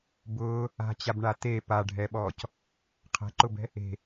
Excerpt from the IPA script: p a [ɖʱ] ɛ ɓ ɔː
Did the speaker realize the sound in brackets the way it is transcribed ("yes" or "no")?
yes